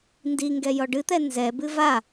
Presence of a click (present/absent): absent